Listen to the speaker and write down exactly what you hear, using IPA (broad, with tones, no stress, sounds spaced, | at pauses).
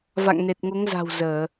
v a̰˧˨ ŋ n e˨˩ t̚ ŋ o˨˦ ŋ z a̤˨˩ w z əː˧˩˨